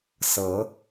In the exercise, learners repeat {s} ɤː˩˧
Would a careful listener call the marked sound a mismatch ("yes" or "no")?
no